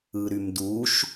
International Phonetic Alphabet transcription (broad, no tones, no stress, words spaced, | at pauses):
ɯɾymduʃ